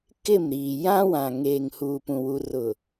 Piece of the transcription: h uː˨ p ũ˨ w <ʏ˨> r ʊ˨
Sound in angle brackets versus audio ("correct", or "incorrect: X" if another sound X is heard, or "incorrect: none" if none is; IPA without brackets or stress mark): incorrect: u˨